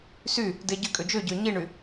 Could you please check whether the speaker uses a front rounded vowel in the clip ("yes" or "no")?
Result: yes